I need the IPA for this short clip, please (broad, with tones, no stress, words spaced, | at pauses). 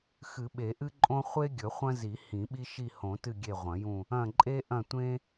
xɨ˨˩˦ɓe˨˩˦ʔɨ˦ǃʼõ˦ χʷe˦ ɡʲɵ˨˩˦χʷɐ̃˦zi˨˩˦ hĩ˨˩˦ɓi˦ ʃi˦˨hõ˨˩˦tɨ˦˨ ɡʲe˦˨ʁʷɐ̃˨˩˦jũ˦˨ | ɐ̃˦˨ ǃʼe˦ʔɐ̃˦˨ tʷẽ˦